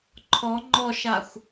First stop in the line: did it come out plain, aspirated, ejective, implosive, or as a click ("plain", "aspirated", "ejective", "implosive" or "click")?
click